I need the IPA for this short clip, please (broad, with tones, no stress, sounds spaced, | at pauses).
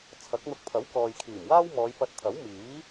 t͡sʰ ɐ˨˥ k̚ n̪ ʊ˧ k̚ pʰ ɐ˨˥ w k ɔː˨ j kʰ iː˨˩ m w aː˥ w m ɔː˨˧ j p ɐ˧ t̚ t̪ʰ ɐ˨˥ w m iː˨˥